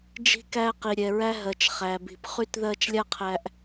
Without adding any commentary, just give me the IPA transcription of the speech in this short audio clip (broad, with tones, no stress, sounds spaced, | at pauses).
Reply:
d͡ʒ i̤˦ k æ˦ q i˨ ɾʲ ɛ˨ ɹ æ˦ ɦ ɜ˨ t͡ʃ χ æ˨ b i̤˨ p χ y˦ t ð ɜ˦ t͡ʃ lʲ a˥ qʰ æ˦ ʔ